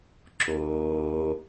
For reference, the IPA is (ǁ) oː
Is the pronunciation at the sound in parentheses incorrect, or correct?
correct